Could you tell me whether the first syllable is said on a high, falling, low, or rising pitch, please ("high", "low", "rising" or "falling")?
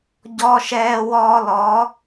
high